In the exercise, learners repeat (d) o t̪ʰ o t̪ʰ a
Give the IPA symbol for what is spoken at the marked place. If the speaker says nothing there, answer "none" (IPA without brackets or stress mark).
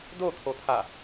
d